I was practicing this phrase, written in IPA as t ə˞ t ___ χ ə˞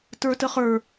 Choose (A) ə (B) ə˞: A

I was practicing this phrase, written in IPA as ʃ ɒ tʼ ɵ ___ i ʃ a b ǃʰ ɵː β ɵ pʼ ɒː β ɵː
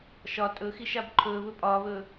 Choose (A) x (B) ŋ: A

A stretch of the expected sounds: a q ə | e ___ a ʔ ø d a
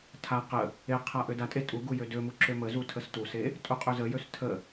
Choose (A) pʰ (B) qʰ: B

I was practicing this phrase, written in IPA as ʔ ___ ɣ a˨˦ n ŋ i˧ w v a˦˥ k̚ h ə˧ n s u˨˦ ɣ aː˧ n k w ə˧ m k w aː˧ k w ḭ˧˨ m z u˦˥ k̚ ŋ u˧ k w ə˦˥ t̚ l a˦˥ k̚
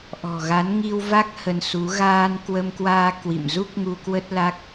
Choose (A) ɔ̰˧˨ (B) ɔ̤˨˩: B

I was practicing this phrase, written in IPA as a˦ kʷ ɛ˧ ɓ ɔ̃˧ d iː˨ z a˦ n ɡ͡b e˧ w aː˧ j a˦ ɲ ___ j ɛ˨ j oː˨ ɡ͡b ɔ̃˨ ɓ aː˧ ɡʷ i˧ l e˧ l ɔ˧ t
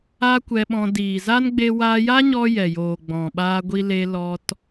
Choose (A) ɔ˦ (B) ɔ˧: B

